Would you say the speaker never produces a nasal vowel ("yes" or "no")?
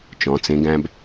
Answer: no